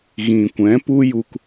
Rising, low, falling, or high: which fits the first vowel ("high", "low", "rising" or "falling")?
low